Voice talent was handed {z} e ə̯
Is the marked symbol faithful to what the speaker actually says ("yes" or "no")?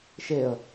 no